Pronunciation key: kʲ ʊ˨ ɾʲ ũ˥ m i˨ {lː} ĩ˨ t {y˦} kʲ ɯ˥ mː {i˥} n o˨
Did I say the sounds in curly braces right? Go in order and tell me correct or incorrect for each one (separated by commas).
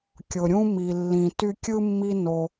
correct, correct, incorrect